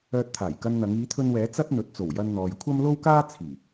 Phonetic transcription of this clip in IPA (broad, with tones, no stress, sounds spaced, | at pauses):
œː˧ t̚ t̪ʰ aː˨˩ j k ɐ˧ n n̪ ɐ˨˧ ŋ iː˨˧ t̪ʰ ɵ˧ n w ɛː˨˧ t͡s ɐ˥ t̚ n̪ ɵ˨˥ t̚ t͡s o˨˩ w j ɐ˧ n n̪ ɔː˨ j kʷʰ ɐ˥ m l o˥ w k aː˥ t͡sʰ iː˨˩